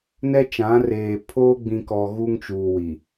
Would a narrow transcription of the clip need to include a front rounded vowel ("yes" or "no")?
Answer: no